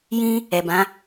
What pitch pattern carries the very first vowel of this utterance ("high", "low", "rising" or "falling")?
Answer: high